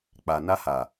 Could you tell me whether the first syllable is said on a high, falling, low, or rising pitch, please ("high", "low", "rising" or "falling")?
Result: low